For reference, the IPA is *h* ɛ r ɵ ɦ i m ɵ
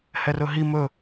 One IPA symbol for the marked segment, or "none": h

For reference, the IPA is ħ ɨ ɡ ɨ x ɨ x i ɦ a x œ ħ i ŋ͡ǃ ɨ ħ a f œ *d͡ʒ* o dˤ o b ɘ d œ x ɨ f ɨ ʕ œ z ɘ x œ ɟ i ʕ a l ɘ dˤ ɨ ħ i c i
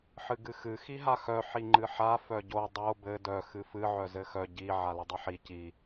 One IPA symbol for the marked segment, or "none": ɟ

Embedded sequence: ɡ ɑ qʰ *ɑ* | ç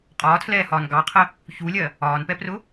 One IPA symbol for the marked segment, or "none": ə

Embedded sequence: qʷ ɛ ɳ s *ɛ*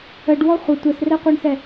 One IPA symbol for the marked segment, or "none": ɛ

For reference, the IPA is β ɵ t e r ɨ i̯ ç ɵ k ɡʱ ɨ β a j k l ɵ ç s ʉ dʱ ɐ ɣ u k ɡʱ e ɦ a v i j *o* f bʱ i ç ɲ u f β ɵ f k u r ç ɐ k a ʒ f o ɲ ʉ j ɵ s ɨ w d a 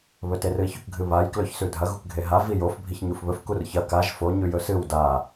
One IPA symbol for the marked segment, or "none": o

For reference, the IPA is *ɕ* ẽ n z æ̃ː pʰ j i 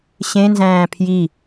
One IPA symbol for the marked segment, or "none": ɕ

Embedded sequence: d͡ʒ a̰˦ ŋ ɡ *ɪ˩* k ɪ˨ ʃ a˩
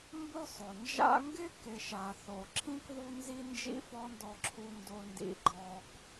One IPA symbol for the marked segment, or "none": ɪ˥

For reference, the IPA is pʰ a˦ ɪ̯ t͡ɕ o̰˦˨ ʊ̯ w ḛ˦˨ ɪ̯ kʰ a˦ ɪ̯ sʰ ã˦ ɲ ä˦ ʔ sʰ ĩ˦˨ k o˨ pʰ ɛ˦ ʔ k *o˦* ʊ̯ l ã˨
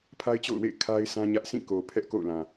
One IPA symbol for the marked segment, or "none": o̰˦˨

